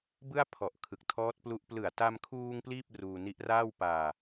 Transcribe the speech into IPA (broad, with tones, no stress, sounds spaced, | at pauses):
b ɯ˥˩ a̯ pʰ ɔ˨˩ ʔ kʰ ɯ˨˩ k̚ tʰ ɔː˦˥ t̚ p l u˦˥ ʔ p l ɯ˨˩ a̯ t a˧ m kʰ uː˧ ŋ p l iː˥˩ p̚ r uː˧ n i˦˥ ʔ r aː˥˩ w p aː˧